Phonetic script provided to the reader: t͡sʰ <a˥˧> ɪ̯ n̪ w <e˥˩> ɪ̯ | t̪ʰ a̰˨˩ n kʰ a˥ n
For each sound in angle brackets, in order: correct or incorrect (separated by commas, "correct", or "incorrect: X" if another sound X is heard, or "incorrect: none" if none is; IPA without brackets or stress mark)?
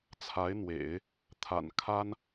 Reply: incorrect: a˧˥, incorrect: ḛ˨˩˦